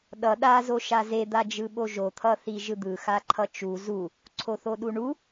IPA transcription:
ɗ ʌ ɗ a z o ʃ a z e d̪ a d͡ʒ ɯ ɓ o ʒ o t̪ʰ ʌ θ i ʒ ɯ d̪ ɯ x a ǃʰ ʌ t͡ʃ u z u | ǀʰ o θ o ɗ u ɳ u

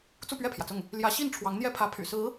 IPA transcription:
t͡s u˥˧ p ɥ ɛ˥˩ pʰ j ä˩ t͡s ʊ˥˩ ŋ | l j ä˧˥ ɕ i˥˩ n ʈ͡ʂʰ w ɑ˧˥ ŋ n̪ j ɛ˥ pʰ ä˧˥ pʰ y̰˨˩ s ɹ̩˧˥

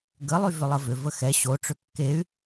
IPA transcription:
ɡ ə lˠ y v ʏ lˠ ə v ʏ v ə x ɛ ɕ o ʈ͡ʂ ʏ kː e y̯

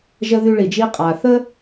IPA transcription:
ʒ ə˧ ð y˧ ɭ i˩ d͡ʒ i˧ qʼ a˩ θ ə˥

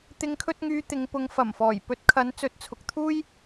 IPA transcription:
t̪ ɪ˨˧ ŋ kʰ ɵ˧ t̚ ŋ yː˧ t̪ ɪ˨˧ ŋ p ʊ˨˧ ŋ f ɐ˨˩ m f ɔː˨˩ j p ɵ˨˥ t̚ kʰ ɐ˨˥ n t͡s ɵ˨˥ t̚ t͡sʰ ʊ˨ k̚ t̪ʰ uː˥ j

